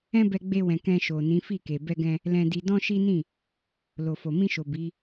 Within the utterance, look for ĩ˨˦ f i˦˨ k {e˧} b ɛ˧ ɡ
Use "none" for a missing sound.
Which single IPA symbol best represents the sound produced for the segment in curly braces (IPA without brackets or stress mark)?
e˨